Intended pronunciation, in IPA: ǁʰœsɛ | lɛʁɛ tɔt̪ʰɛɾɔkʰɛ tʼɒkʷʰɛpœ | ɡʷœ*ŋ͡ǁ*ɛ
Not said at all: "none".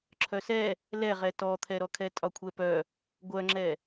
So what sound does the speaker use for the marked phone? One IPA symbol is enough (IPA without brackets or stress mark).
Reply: ŋ͡ǁ